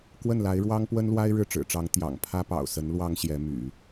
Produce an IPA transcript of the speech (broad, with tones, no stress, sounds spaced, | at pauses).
k w ə˥˩ n l a˧˥ ɪ̯ ɻ w ɑ˥ ŋ p w ə˥ n l w a˥ ɪ̯ ɻ ɻ̩˥˩ ʈ͡ʂ ɻ̩˨˩ ʈ͡ʂ ɑ˧˥ ŋ t̪ j ɑ̰˨˩ ŋ pʰ ä˥ p ɑ̰˨˩ ʊ̯ s ə˧˥ n l w ɑ˥ ŋ ɕ j ɛ˧˥ m y̰˨˩˦